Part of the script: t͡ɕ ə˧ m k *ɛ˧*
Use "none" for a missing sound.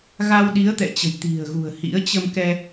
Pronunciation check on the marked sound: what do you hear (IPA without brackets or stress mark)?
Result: ɛ˧